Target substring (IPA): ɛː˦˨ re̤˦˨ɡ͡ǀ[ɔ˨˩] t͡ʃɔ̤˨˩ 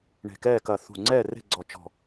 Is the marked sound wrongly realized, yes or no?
no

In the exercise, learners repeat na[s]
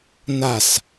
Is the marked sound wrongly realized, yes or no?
no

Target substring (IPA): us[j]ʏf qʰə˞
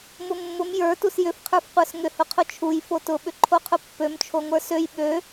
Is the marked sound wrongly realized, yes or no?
no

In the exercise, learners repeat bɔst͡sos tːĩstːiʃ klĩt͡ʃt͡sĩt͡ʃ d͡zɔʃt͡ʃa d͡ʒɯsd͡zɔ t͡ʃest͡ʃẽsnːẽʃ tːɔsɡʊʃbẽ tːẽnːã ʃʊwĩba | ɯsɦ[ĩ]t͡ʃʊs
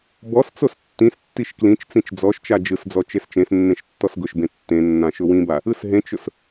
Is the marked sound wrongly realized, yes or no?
yes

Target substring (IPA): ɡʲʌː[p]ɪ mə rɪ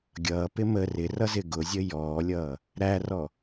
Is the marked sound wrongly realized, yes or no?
no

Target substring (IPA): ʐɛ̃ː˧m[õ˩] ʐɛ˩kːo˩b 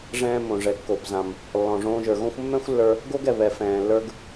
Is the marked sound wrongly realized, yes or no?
no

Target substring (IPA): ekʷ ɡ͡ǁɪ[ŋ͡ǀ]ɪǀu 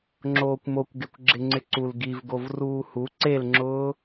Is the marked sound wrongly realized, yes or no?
no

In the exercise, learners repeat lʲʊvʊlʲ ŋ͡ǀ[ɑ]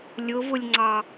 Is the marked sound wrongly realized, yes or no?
no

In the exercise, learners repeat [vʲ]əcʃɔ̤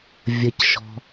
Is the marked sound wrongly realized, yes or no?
no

